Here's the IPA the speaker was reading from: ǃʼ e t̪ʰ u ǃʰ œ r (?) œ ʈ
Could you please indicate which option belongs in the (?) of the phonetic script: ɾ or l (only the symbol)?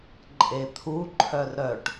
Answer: ɾ